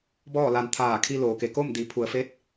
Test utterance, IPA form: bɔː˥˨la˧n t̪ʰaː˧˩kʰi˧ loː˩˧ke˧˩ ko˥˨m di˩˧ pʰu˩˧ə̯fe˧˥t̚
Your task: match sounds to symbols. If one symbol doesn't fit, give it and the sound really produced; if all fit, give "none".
none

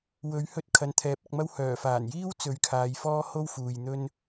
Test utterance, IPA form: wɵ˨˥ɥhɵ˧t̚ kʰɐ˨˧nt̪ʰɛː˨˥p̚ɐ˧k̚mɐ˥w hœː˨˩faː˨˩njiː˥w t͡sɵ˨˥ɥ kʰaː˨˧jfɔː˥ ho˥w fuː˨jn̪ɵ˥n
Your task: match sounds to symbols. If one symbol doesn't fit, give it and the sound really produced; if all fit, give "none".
none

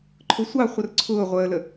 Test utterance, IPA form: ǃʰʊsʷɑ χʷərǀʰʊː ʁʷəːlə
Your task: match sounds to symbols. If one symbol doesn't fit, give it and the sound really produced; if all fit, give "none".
none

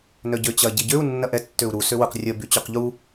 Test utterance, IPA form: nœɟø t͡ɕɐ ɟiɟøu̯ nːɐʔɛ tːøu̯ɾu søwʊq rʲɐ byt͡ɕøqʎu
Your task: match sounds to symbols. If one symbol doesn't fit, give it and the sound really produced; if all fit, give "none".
none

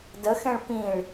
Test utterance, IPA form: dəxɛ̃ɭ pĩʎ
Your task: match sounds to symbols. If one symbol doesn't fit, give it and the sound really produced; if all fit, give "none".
ʎ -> ɭ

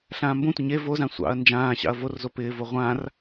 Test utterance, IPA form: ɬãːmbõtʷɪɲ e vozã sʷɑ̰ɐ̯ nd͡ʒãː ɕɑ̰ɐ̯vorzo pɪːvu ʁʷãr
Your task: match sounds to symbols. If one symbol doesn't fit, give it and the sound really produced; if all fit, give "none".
u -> o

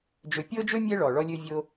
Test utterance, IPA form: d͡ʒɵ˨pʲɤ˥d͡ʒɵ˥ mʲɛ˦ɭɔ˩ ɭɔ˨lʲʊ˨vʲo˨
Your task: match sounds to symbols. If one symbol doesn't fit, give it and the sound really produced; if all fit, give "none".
ʊ˨ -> ɵ˨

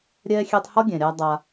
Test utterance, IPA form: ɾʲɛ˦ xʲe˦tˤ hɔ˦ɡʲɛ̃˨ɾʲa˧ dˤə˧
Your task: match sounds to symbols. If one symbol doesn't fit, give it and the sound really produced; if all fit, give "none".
ə˧ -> a˧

